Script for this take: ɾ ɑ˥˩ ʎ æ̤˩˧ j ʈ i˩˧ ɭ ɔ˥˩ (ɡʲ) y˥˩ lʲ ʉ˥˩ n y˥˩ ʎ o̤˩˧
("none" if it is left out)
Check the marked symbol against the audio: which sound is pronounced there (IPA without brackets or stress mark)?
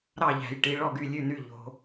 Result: ɡ